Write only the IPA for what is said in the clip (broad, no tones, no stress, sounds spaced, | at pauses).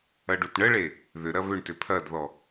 ɐ ɖ u t ɳ ə ɭ e | ð ʏ ɾ ɐ β ʏ ɳ t ʏ pʰ ɐ d ð ɔ